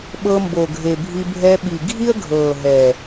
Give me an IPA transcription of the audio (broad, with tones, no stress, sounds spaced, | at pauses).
ɓ ɤ˧ m b o˨ ɡʱ e˨ bʱ i˧ bʱ ɛ˧ ɓ i˨ ɡʱ i˦ ə̯ ɡʱ ɤː˨ ɦ ɛː˨